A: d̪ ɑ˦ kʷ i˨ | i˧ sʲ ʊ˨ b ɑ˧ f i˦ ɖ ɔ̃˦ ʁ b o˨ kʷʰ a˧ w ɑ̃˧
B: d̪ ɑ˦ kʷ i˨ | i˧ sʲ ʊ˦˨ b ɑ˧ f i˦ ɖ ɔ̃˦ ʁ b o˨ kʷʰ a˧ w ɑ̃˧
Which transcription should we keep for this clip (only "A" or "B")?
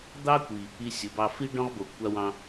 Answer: A